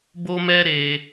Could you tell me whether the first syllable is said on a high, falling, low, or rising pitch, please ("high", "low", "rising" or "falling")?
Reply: high